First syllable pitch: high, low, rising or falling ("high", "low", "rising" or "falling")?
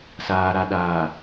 low